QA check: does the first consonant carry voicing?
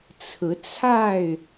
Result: no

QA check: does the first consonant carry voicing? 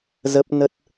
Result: yes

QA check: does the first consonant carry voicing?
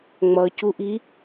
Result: yes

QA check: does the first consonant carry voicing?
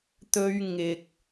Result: no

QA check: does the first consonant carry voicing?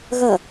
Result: yes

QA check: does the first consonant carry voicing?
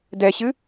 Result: yes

